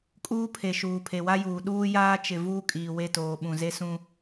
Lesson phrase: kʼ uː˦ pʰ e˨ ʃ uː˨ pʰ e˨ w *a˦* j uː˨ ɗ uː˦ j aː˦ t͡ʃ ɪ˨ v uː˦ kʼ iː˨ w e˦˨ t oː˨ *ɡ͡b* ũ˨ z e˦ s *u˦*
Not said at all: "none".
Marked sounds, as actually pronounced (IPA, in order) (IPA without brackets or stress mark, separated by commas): a˦, ɓ, ũ˦